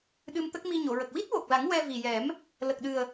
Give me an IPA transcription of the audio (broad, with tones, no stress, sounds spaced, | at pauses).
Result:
ɗ ɨ˧ m t̪ ə˦˥ k̚ m i˧ ɲ o˨˩˨ ɹ ə˨˩ k̚ w i˦˥ t̚ w o˨˩ k̚ l a˨˩˦ ŋ w ɛ˧ v i˨˩ j ɛ˨˩˦ m | l ə˨˩ k̚ ɗ ɨ˨˩ ə̯